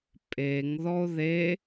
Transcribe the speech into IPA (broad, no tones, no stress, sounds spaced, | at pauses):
pʼ e ŋ ð ɔ o̯ ð e